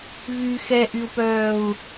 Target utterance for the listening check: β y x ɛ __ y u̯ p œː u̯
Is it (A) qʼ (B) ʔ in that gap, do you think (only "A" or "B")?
B